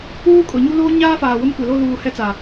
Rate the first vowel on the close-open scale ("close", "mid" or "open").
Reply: close